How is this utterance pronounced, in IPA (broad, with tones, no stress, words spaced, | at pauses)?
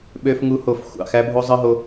ɓø˧f ŋu˧ho˧˩f xʷɑ̰˧˩xæ˧bʱo˧ zˤɯ˧ɦo˧